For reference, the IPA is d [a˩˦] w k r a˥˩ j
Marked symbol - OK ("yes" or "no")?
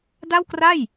no